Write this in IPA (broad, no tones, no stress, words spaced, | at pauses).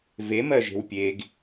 vemɜʒe̤w pʲeɡ